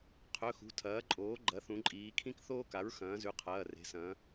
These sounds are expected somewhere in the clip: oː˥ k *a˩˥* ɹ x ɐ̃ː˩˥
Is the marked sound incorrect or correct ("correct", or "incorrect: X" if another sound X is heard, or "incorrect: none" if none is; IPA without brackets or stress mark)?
correct